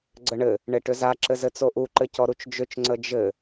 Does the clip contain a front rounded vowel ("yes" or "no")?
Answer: yes